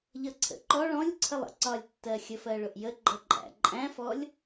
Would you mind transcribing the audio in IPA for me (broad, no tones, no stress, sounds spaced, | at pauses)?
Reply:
ʎ ʌ ǀʰ ə̰ ǃ ɔ ɭ ɔ̃ lʲ ǀʰ ə lˠ ə̰ ǀ ɒ lʲ tː ɜ xʲ ə f ɜ ɭ ʊ ʔ j ə ɡ͡ǃ ʌ ǃʼ æ̰ ǃʼ æ̃ f ɔ lʲ